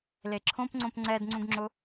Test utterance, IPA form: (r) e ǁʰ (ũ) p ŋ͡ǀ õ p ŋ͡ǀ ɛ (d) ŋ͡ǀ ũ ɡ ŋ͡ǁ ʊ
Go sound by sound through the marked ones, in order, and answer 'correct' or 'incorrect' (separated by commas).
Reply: incorrect, incorrect, correct